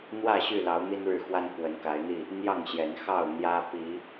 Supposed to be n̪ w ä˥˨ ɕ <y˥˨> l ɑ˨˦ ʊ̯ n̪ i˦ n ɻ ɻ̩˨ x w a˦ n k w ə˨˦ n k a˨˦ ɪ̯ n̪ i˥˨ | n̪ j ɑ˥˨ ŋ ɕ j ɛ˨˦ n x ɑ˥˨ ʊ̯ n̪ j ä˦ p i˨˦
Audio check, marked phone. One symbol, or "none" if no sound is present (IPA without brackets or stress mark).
y˥˨